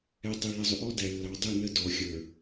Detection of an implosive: absent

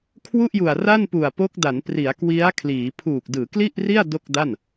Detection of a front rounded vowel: absent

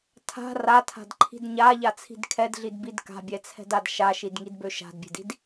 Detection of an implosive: absent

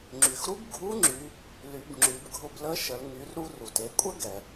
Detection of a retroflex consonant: absent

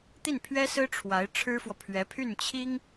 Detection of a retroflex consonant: present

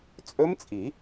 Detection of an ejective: present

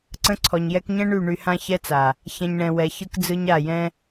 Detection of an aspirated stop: present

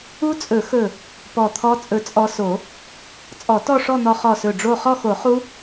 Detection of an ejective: present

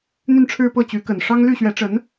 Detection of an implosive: absent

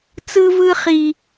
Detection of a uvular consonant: present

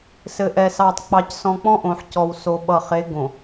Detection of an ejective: absent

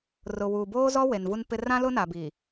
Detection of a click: absent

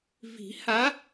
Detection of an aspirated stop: absent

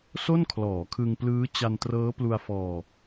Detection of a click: absent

